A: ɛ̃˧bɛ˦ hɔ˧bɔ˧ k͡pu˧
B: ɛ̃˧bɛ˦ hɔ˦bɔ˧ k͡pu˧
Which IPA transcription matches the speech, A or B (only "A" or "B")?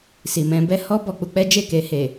B